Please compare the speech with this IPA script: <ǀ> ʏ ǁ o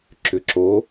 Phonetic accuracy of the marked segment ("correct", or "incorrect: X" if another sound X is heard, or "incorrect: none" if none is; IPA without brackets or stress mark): incorrect: ǁ